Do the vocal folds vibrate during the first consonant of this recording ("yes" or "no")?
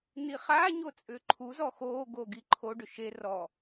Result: yes